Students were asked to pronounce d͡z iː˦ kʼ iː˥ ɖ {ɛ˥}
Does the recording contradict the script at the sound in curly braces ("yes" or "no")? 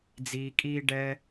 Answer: no